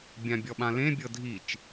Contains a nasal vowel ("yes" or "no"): yes